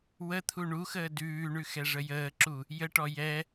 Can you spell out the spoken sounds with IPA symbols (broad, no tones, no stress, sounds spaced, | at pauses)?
w ə t̪ʰ u ɳ u x əː d ʉː ɳ ʉ x ɛ ʐ ə j əː ǁ u | j ə ʈ ɔ j ɛ